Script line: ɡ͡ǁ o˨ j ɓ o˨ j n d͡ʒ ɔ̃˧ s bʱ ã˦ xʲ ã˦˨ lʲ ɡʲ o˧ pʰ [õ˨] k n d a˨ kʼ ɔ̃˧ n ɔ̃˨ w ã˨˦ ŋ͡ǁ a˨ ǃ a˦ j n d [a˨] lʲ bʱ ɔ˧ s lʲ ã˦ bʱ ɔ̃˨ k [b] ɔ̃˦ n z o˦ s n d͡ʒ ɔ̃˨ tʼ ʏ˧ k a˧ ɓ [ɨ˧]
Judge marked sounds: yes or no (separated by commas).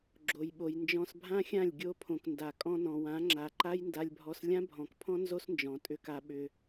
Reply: yes, no, no, no